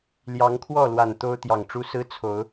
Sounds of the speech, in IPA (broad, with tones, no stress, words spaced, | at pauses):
ljɑ˨˦ŋkʰwɔ˥˨lwa˨˩n t̪o˦ʊ̯t̪jɑ˨˩ŋʈ͡ʂu˦ sɹ̩˦t͡sʰo˨˦ʊ̯